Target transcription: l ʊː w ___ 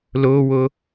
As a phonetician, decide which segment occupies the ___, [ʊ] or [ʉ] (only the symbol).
ʊ